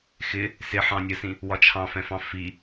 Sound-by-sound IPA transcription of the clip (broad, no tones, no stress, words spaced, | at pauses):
xɪ | sɪħɑ̃nʲɜsĩ | wɒt͡ʃʰɑ̃fɛ̃fɑ̃ fi